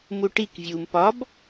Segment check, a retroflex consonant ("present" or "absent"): present